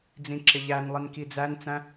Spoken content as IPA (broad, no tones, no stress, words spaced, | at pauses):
d͡zĩǁɪʎænlˠin kid͡zænt͡sæ̃